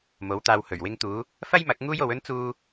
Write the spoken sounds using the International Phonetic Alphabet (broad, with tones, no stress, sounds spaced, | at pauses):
m o˨˥ w t̪ aː˧ w h ɵ˨˩ ɥ w ɪ˧ ŋ t̪ uː˨˧ | f ɐ˥ j m ɐ˨˥ k̚ ŋ uː˥ j o˨˧ w ɵ˥ n t͡s uː˧